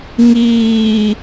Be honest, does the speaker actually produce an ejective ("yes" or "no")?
no